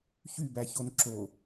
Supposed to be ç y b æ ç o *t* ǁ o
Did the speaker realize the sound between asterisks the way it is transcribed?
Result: no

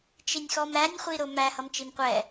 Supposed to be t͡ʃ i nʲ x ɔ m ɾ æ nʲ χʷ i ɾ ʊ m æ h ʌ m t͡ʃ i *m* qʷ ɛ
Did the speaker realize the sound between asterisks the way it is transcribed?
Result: yes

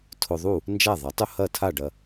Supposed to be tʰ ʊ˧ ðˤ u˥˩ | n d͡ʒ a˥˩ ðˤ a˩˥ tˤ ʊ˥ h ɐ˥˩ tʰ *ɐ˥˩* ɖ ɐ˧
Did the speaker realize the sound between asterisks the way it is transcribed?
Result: no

